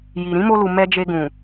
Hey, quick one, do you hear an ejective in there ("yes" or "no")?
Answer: no